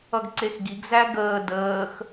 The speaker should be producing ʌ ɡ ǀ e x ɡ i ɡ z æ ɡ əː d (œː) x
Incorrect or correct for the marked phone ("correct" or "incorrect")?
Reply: incorrect